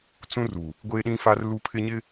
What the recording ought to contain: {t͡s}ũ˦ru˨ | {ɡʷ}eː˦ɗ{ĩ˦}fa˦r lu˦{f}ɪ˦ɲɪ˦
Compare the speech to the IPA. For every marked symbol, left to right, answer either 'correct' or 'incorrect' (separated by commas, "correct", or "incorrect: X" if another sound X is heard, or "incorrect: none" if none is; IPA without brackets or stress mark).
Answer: correct, correct, correct, incorrect: pʰ